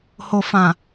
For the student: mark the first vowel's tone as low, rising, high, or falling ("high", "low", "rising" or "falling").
low